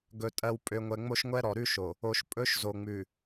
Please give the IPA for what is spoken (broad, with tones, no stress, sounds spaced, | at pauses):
ɡ ɵ˨ tʼ ɜ˨ w pʼ ø˨ ŋʷ ɛ˨ ŋ͡m o˦ ʃ ŋʷ ɛ˦ ɾ ɔ˨ ɾ ʉ˦ ʃ o˨ | o˨ ʃ pʼ ɵ˦ ʃ z o˨ ŋ͡m ʉ˨